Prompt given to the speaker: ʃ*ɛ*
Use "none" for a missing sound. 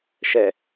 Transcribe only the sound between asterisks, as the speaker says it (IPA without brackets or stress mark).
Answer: ɛ